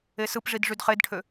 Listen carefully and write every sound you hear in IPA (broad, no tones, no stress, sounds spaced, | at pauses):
e s ɯ p ʐ i d ʐ y d χ e d ʈʰ ø